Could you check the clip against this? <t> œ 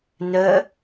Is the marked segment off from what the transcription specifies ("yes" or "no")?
yes